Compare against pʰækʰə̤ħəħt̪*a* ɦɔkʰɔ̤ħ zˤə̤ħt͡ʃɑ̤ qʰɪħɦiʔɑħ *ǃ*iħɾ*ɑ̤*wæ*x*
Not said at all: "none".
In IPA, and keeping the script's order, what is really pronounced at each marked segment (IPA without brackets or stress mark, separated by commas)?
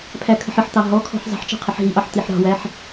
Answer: ɑ, t̪, ɑ̤, ħ